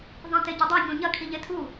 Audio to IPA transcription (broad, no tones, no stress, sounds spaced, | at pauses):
ðˤ ẽ t e ɟ ɵ dˤ ɐ ɲ õ ɲ ɐ kʰ i ʎ e tʰ u